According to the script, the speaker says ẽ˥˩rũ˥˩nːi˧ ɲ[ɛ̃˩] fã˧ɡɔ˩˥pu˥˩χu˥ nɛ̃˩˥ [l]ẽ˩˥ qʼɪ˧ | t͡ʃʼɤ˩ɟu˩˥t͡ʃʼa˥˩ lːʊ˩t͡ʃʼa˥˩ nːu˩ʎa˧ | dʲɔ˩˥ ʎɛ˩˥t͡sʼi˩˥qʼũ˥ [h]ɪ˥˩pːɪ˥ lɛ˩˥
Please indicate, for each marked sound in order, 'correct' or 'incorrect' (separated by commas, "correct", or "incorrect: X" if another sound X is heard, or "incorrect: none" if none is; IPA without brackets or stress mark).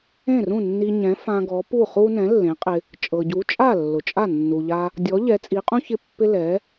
incorrect: ɛ̃˩˥, incorrect: lː, incorrect: ç